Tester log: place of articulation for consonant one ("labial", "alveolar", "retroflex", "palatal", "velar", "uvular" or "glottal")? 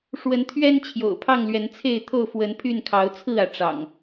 retroflex